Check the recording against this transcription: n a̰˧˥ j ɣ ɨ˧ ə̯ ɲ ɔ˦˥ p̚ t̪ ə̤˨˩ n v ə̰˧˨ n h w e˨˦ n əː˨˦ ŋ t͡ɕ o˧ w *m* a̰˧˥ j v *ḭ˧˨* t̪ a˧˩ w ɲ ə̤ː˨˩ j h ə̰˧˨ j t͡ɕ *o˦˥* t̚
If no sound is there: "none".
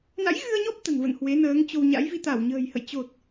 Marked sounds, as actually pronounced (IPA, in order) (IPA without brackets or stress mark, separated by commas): ɲ, i˧, o˨˩